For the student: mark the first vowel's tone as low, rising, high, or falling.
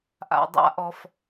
low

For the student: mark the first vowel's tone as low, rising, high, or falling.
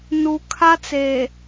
low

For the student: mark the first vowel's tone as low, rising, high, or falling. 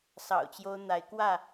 low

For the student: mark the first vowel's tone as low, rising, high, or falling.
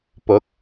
rising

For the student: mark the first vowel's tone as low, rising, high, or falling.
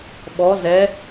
rising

